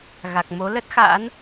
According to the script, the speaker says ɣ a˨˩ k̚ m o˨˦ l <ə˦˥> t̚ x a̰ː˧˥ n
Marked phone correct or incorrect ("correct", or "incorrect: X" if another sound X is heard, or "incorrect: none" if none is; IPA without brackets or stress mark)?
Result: correct